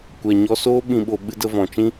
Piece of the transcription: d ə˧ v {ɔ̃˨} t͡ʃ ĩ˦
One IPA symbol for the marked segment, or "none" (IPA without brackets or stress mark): ɔ̃˨